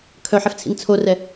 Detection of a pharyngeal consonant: present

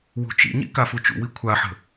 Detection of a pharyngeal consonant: present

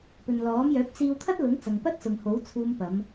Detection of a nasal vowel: absent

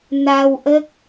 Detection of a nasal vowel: absent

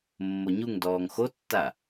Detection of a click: absent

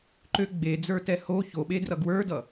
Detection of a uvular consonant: absent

